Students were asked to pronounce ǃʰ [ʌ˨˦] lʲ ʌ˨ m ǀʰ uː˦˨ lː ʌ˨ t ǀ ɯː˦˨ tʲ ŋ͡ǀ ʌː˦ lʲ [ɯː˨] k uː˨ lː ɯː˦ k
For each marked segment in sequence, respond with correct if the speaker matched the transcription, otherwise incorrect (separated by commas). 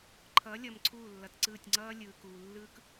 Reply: correct, correct